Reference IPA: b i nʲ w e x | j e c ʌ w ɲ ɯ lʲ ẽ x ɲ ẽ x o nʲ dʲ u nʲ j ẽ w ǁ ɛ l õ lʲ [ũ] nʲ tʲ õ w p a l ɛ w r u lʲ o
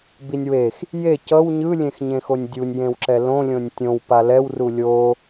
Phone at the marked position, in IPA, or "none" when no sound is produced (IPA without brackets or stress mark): õ